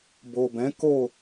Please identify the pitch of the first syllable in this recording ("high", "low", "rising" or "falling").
low